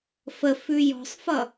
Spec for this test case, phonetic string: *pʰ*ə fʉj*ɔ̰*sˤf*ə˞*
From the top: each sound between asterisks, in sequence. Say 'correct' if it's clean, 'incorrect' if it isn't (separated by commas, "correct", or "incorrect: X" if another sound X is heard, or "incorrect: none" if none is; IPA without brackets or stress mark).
incorrect: f, incorrect: ɔ̤, incorrect: ʌ